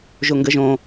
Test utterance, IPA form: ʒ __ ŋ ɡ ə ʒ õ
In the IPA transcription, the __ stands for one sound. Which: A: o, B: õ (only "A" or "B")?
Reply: A